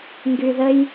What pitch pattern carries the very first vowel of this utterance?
low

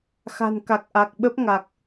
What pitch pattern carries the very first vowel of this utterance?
low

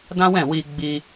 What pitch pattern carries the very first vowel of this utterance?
high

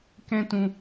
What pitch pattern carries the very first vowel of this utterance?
high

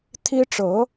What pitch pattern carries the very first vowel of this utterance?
high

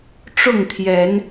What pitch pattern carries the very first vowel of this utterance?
falling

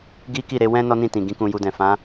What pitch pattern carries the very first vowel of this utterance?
high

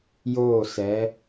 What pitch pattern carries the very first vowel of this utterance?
falling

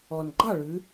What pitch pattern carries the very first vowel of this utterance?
low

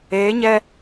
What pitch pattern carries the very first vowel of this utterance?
rising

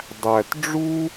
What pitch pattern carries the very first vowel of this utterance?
low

